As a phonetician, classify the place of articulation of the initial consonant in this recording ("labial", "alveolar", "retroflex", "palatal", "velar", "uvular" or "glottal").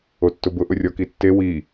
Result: alveolar